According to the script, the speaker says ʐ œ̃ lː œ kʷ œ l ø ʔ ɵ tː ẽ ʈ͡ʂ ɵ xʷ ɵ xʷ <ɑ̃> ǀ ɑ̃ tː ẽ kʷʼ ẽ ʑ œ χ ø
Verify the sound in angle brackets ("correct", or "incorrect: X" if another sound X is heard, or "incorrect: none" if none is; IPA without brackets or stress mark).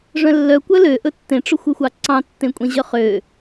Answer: incorrect: ɑ